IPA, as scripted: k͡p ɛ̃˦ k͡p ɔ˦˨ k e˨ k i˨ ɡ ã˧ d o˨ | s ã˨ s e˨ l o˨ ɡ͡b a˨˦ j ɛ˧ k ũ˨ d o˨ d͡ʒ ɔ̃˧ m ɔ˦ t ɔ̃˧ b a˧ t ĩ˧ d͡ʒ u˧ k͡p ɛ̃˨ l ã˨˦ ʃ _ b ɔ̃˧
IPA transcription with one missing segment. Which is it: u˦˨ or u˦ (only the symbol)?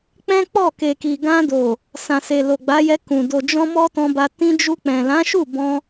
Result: u˦˨